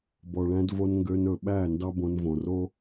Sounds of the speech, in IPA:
bɔ˨ɭæ̃˧dvo˧n ŋɡø˧nɵ˨ɓæ˦˨ ndɑ˦bõ˧nvõ˨ ro˦

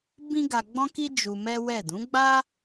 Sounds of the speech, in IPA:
bĩ˦ɡa˧ɡ͡bɔ̃˦ki˦ d͡ʒu˧mɛ˦wɛ˦˨ dũ˨˦ɡ͡ba˦

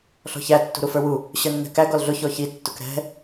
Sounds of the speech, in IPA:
ɬɔ̤çæ tːṳɾufə˞wu | ɕə˞nːɛ̤kæ ɡɔlɮʊ çɔçi tːʊkɾɛ̤

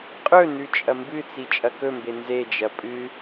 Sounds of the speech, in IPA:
qʼɵ nʉt͡ʃʼɐmbɨt͡si t͡ʃʼɐkɵmbe nzed͡ʒɐ pʼɨ

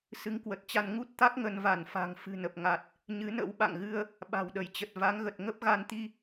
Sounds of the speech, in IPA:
sɨ˨˦ŋkwə˨˩t̚t͡ɕa˧n ŋu˦˥t̚t̪a˦˥k̚ ŋə˧nva˧˩nfa̤˨˩ŋ fɨ̤˨˩nə˨˩p̚ŋa˨˩t̚ | ɲɨ˨˦nə̰˧˥w ɓa̰˧˨ŋɣɨ˧ə̯ | ɓa̤˨˩wɗə˧˩jt͡ɕə˨˩t̚ va˨˦ŋɣə˨˩t̚ ŋə˦˥p̚ ɣa˧nt̪i˧

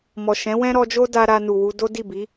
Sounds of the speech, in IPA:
mɔ˨ʃɛ̃˨˦wɛ̃˦ ɾɔ˧d͡ʒo˦da˧ ɾa˧nu˨wu˧ do˦di˦˨bi˨˦

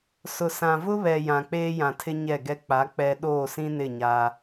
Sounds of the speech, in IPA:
sʊ˨sã˨vʊ˦βɛ˨ jã˨k͡peː˦jã˨tʰɪ˦ ɲɛ˦˨ɡɛ˦ k͡pa˨˦ k͡pɛ˨ ɗoː˦˨sĩ˦nɪ˦˨ ɲa˦

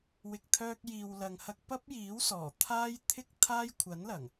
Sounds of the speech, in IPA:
wɪ˧k̚t̪ʰœː˥k̚ jiː˨wlɐ˨ŋ hɐ˧k̚ pɐ˥p̚jiː˨˥wsɔː˨˩ t̪ʰaː˥j t̪ʰɪ˥k̚ t̪ʰaː˥j kʷʰɐ˨˥nlɐ˨˩ŋ

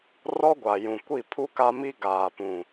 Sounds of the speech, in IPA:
rɔ˦ɡʷa˨jũ˨ kʷi˦˨pʰu˦ka˦mi˦ ɡaː˨pũ˨

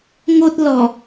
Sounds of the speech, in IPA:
ŋo˦t̚ lɔ˨˩

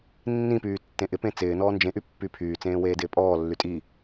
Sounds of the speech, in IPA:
nːĩpyː tːẽʔɪpẽ t͡sɪː nɔːnd͡ʒẽʔy pːypʰyːt͡sẽː weːdɪːpʼɔːlːy tʼi

